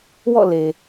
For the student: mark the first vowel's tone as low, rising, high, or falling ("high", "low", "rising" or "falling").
falling